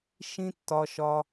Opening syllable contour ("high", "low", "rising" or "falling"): high